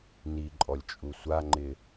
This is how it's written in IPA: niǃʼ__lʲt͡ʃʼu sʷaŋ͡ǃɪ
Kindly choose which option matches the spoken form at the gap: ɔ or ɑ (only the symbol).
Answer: ɔ